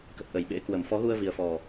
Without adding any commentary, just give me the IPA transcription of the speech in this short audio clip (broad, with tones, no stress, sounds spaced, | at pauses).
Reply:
k ə˨˩ t̚ ʔ ə˨˩ j ɓ ḛ˧˥ k w ə˧˩ m f ɔ˨˦ ɣ u˧ ə̯ v i˨˩ ə̯ f ɔ˨˩